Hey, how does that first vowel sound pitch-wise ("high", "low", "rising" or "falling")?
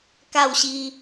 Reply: falling